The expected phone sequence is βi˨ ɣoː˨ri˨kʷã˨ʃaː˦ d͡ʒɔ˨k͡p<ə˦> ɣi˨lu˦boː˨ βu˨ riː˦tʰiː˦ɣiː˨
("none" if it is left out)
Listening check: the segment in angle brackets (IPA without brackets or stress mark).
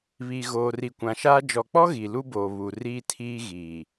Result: ɔ˦